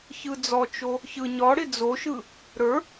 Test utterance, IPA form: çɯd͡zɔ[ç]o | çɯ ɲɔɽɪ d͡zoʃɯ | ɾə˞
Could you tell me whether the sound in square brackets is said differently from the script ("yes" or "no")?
yes